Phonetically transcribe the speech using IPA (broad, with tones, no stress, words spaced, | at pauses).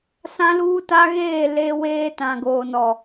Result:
sã˦luː˦ta˦ɣeː˦˨ le˦weː˦ tã˨ ɡoː˨nɔ˨